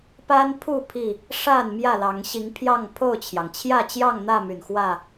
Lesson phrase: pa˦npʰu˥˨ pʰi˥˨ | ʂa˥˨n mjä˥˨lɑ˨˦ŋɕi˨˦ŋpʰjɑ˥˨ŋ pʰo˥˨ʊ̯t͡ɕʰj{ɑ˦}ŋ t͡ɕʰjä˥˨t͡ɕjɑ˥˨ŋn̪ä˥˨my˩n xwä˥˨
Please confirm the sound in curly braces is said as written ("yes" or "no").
no